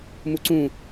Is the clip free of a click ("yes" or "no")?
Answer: no